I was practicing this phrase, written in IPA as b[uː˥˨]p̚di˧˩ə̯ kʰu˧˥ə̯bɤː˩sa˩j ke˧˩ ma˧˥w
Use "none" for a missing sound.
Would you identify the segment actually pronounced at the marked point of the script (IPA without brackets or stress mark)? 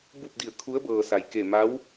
u˥˨